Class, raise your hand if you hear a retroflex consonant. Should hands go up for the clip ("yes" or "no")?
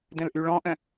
yes